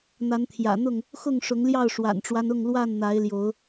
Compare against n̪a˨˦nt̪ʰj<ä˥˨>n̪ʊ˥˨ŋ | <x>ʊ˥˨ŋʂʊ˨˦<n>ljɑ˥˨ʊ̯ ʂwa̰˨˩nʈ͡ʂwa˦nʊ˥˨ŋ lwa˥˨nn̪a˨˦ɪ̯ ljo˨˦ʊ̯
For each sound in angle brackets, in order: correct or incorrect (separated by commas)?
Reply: incorrect, correct, incorrect